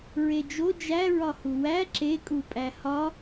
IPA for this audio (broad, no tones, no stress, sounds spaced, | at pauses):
ɹ e d͡ʒ o d͡ʒ æ ɹ ɒ h u w æ ǁ e kʼ u pʼ æ h ɒ